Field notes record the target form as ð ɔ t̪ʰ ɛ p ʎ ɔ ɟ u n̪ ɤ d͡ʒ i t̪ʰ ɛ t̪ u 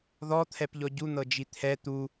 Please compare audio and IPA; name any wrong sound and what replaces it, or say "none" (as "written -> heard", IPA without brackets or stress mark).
none